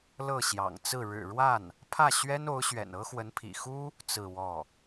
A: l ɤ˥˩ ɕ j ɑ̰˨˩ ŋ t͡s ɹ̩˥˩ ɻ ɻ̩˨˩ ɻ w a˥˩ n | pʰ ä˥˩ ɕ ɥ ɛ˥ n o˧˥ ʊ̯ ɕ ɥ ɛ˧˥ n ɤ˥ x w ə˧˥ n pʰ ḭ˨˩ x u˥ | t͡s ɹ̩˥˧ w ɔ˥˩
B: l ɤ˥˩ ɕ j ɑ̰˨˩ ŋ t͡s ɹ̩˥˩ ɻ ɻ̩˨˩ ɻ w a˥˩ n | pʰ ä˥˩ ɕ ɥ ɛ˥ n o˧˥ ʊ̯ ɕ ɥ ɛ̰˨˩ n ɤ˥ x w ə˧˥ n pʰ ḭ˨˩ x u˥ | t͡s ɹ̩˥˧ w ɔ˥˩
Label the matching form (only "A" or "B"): B